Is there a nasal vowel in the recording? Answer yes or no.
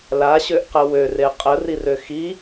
no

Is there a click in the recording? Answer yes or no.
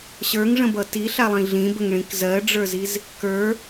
no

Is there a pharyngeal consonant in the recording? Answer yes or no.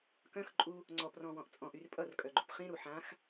yes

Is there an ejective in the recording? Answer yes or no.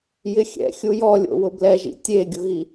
no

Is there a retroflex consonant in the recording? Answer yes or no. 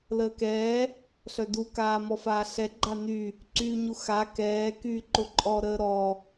no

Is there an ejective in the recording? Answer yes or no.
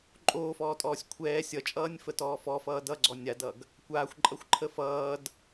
yes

